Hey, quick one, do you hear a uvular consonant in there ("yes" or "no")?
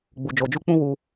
no